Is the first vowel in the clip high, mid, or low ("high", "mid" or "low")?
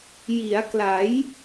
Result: high